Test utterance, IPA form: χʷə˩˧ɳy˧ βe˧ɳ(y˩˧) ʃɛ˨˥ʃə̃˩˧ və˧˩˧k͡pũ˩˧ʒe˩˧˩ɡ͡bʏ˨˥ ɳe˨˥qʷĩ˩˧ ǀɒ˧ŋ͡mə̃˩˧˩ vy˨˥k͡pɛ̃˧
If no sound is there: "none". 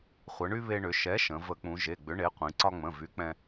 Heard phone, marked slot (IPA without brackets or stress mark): ʏ˩˧